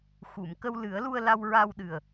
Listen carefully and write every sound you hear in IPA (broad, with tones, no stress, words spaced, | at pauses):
xu˨˩˨mkə˧w lɨ˨˩˦ə̯ lu˧ə̯la˧wɹa˧w ɗɨ˨˩ə̯